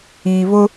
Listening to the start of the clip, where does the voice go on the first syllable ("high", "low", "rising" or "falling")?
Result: low